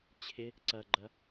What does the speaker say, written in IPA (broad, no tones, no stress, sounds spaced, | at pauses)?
t͡ɕʰ ɪ | ǀ ɐ ɡ͡ǃ ɐ